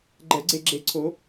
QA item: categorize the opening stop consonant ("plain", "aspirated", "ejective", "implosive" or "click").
click